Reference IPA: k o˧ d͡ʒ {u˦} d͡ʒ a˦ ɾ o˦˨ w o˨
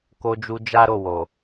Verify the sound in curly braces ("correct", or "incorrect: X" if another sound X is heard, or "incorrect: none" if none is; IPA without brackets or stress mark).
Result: incorrect: u˧